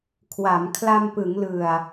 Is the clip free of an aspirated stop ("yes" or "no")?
no